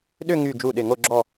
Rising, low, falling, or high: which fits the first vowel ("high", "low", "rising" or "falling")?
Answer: falling